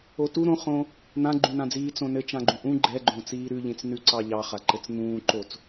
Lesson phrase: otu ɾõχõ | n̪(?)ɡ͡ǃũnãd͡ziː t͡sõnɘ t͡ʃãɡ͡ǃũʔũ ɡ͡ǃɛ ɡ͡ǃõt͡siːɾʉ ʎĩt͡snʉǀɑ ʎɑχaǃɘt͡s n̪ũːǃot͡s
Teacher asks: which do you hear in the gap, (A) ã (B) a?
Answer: A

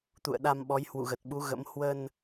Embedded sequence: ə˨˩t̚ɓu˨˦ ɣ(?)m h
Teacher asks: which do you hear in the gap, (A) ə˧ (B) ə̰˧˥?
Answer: B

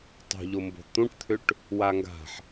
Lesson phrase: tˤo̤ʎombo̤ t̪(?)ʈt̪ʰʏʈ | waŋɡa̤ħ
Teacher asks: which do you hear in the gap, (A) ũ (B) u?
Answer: A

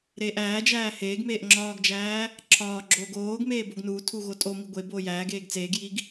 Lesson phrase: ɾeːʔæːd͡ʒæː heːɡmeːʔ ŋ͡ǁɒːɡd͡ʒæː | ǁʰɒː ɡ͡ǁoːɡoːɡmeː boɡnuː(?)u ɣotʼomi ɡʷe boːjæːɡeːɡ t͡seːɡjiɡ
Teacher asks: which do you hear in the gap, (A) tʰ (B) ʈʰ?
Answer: A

